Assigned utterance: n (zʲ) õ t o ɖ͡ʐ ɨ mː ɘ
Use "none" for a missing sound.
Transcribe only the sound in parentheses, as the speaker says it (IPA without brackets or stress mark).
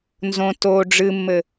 z